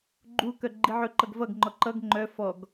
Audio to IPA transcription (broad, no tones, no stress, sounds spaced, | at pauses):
ɡ͡ǃ u k œ ɡ͡ǃ i ʕ ɵ ǃ ʌ ɡ v ʌ ɡ ŋ͡ǃ ɔ ǃ ʌ ɡ ŋ͡ǃ œ f ɔ ɡ